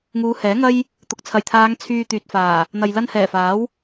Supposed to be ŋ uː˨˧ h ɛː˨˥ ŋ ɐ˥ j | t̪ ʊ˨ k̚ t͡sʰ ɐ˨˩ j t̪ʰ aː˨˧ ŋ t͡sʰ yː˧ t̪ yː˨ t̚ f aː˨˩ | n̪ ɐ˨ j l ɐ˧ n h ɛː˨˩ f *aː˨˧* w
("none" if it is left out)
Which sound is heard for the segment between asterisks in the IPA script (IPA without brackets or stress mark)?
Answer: aː˨˥